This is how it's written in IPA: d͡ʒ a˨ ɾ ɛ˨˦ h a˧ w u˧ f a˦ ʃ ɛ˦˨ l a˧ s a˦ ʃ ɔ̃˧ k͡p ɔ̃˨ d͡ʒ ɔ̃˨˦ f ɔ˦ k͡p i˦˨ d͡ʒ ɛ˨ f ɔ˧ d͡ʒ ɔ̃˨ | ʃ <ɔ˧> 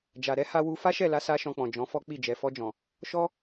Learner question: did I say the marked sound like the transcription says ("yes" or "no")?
yes